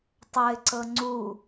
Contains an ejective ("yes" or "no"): no